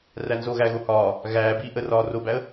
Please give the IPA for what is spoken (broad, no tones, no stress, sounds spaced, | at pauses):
r æ n z o ɣ æ ɣ o h ɒː | ɣ æː b iː ʔ ə r ɒː r o b æ ə̯